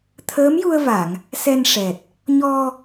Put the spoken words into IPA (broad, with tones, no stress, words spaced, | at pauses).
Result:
t̪ʰəː˧˥mju˧ə̯va˨˩˨ŋ | sɛ˧nʂɛ˨˩t̚ | ɲɔ˧